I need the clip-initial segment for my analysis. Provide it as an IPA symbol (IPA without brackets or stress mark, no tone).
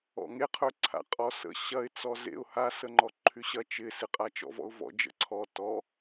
ɔ̰